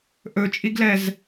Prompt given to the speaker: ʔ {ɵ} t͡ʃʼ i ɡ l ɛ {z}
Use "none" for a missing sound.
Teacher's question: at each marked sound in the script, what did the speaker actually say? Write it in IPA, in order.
ɵ, z

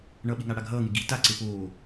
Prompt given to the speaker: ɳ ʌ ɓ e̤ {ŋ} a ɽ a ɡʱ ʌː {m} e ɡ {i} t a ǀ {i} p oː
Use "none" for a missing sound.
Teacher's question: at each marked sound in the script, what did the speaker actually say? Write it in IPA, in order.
ŋ, ŋ, i, e

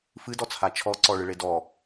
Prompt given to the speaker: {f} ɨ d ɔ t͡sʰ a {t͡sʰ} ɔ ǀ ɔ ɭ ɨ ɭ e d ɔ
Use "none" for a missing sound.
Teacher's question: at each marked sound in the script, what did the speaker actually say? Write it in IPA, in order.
f, t͡ʃʰ

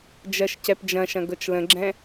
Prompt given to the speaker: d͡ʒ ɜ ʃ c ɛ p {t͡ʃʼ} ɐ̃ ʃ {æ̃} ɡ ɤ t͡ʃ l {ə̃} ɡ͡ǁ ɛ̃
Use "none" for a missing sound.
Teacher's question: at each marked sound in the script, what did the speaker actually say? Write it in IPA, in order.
d͡ʒ, ɐ̃, ə̃

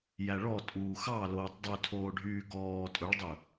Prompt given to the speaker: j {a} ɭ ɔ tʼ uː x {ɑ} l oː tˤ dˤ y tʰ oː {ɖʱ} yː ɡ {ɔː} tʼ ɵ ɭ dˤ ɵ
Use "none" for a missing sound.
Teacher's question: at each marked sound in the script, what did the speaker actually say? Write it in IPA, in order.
æ, ɑ, ɖʱ, ɔː

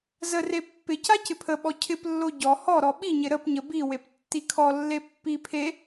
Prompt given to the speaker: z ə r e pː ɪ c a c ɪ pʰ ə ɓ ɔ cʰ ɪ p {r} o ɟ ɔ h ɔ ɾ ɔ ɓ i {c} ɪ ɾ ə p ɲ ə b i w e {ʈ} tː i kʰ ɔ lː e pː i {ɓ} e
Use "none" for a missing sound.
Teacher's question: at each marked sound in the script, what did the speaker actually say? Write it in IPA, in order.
lː, ɲ, p, pʰ

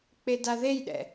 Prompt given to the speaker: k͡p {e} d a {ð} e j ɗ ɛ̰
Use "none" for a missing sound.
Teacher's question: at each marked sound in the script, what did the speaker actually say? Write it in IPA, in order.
e, ð

